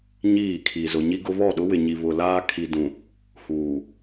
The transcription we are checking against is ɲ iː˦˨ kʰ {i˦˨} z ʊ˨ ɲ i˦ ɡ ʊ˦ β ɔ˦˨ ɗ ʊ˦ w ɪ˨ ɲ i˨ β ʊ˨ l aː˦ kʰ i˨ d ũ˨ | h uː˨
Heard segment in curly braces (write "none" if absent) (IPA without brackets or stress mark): i˨